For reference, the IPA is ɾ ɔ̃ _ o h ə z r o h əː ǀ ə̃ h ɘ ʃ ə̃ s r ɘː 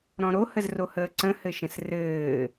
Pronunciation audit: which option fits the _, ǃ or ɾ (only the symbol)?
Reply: ɾ